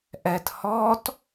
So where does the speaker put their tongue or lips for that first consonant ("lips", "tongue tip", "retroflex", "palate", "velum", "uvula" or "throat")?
throat